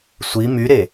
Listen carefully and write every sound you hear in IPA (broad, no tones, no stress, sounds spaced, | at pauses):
sʷ i m y ɾ e